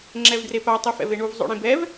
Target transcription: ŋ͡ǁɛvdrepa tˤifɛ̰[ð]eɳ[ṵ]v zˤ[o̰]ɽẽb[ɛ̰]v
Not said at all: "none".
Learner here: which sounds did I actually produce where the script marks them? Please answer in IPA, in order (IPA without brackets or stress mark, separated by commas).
v, u, o̰, ɛ